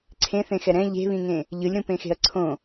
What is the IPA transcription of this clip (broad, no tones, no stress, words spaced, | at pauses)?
ǀʰẽθẽxɛ ɾɛ̃ ʎe̤βĩŋẽ | ʎɯlʲɾũpẽxe̤ɐ̯ ǀʰõ